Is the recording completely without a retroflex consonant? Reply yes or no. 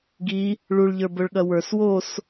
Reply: no